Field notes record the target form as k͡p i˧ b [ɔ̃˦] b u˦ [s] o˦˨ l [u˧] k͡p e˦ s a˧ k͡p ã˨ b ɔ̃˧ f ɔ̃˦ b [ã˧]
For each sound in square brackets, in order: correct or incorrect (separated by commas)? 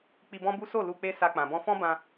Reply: correct, correct, correct, correct